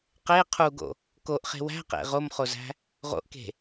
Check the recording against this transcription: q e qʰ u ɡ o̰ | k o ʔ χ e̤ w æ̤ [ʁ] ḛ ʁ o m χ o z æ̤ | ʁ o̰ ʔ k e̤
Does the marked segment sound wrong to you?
yes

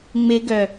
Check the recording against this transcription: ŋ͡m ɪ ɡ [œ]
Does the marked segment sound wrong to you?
no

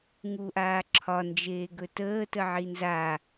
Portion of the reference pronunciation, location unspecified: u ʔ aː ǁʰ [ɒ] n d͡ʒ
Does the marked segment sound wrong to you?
no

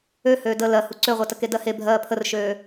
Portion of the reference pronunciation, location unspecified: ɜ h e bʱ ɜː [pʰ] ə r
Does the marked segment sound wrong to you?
no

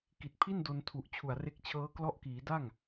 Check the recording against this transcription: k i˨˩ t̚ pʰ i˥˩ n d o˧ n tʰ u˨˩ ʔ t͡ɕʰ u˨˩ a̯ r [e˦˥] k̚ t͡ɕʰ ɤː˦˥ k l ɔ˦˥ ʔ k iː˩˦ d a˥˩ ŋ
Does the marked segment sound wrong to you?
no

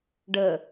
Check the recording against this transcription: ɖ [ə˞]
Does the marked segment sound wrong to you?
yes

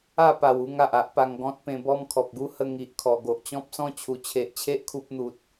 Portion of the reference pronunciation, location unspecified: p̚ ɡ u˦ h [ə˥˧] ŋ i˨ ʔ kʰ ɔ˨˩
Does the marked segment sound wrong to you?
no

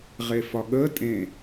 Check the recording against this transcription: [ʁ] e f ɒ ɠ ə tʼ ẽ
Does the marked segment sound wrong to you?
no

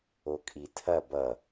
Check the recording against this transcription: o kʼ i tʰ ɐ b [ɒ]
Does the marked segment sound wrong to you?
yes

